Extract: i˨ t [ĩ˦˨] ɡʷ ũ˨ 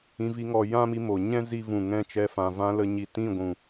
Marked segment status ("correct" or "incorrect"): correct